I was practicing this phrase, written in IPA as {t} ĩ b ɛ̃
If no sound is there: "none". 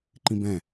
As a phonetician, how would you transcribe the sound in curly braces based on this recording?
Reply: ǃ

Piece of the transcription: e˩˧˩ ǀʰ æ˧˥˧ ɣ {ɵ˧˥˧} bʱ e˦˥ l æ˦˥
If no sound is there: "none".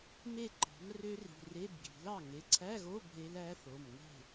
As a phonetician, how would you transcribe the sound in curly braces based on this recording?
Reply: o˧˥˧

